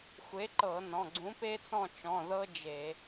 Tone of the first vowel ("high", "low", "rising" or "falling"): rising